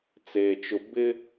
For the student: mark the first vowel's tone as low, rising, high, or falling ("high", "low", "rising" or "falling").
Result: low